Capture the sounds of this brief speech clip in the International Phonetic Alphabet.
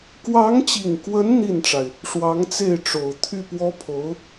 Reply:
k w ɑ˧˥ ŋ t͡ɕ i˨˩ ŋ k w ə˧˥ n n̪ i˥˩ n ʈ͡ʂ a˩ ɪ̯ | ʂ w ɑ˧˥ ŋ t͡s e˥˩ ɪ̯ ʈ͡ʂ o˨˩ ʊ̯ t̪ʰ y˥˩ p w ɔ˥ pʰ o˧˥ ʊ̯

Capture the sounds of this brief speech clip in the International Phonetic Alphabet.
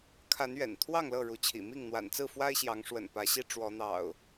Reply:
kʰ a˨˦ n ɥ ɛ̰˨˩ n t̪ʰ w ɑ˥˨ ŋ l ɤ˥˨ ɻ u˨˦ t͡ɕʰ ḭ˨˩ m i˥˨ ŋ n̪ w a̰˨˩ n t͡s ɹ̩˥˨ f w a˦ ɪ̯ ɕ j ɑ˨˦ ŋ ʂ w ə̰˨˩ n p ä˨˦ ɕ i˦ ʈ͡ʂ w ɔ˨˦ n̪ ɑ̰˨˩ ʊ̯

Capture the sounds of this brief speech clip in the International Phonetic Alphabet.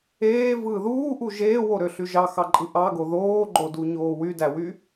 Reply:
eː v ɯː ð uː ʔ u ʒ eː w o ɾ ø ɬ y ʒ ɑ x ɑ ǃʼ ɯ ʔ ɑ ɡ o ð oː ɡ͡ǃ o d u ɲ oː w y d æ w y

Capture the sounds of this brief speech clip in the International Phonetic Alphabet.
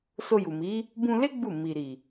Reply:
s o˧ j u˨ m i˨˦ | b ũ˧ l e˦ ɡ͡b u˦˨ m i˨ ɾ i˨

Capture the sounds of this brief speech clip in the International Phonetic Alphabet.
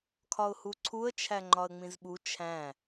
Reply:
kʰ ɒ ʊ̯ h u ǀʰ u ə̯ t͡ʃʰ æ ŋ͡ǃ ɒ ə̯ ŋ͡m ĩ z ɓ u t͡ʃʰ æ̃

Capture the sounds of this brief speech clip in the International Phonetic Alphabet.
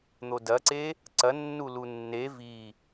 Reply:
n̪ o d ɐ ǀ e | ǀ ɐ nː u l u nː e v i

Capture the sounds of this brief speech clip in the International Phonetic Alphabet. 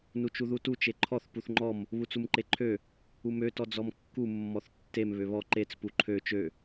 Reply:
n u t͡ʃ u ð u t u t͡ʃ e ǃʰ ɔ θ p u θ ŋ͡ǃ ɔ m | β u t͡s u m ǃ e ǃʰ ø | u m ø t ɔ d͡z ɔ m kː u mː ɔ θ tː e m β ø β ɔ ǃ e t͡s p u ǃʰ ø t͡ʃ ø

